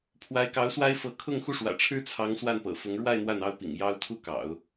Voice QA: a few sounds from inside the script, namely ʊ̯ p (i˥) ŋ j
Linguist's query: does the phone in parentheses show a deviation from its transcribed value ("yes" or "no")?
yes